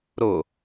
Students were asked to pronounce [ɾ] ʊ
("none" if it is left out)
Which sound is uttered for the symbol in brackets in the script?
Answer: ɾ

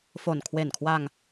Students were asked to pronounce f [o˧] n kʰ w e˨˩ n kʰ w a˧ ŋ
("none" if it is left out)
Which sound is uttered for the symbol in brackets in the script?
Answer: o˨˩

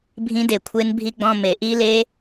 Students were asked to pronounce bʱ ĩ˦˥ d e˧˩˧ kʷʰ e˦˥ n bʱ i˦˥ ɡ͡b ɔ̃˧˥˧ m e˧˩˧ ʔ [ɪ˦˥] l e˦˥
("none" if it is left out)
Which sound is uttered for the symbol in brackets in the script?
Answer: i˦˥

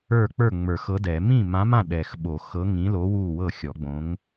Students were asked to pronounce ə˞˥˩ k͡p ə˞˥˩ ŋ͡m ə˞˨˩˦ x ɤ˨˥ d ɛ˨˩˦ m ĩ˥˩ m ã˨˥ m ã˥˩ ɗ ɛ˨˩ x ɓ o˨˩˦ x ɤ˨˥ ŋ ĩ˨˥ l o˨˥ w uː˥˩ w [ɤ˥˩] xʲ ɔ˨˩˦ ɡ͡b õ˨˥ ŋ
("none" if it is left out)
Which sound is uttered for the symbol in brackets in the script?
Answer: ɤ˥˩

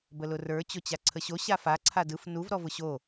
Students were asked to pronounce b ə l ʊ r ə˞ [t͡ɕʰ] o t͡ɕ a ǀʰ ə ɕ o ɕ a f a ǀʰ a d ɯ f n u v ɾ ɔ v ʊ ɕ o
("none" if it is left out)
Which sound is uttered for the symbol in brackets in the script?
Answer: t͡ɕ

